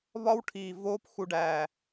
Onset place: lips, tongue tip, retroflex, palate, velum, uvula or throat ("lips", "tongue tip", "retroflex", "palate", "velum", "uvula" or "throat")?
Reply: lips